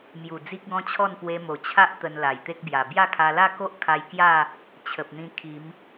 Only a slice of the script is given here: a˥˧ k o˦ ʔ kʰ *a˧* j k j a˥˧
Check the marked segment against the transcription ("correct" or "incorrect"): correct